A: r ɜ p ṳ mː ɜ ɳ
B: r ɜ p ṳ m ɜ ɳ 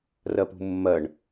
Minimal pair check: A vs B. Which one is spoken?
A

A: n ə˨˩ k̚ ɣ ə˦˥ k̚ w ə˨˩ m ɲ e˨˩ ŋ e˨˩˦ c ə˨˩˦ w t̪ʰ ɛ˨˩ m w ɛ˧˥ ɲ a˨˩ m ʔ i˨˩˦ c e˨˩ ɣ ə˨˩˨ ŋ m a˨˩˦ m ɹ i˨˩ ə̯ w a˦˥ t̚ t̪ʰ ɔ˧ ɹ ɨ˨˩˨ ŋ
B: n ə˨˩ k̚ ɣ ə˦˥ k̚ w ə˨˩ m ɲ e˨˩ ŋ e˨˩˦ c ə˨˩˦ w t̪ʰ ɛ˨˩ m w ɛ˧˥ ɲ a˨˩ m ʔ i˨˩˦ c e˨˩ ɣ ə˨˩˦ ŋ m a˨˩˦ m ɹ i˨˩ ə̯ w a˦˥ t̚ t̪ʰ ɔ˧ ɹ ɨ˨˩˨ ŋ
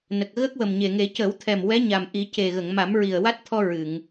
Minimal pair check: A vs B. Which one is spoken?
A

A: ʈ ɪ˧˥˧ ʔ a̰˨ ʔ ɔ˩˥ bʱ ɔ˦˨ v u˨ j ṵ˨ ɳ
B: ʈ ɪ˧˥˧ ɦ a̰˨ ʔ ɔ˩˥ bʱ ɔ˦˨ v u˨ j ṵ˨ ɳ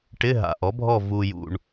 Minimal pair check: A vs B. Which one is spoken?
B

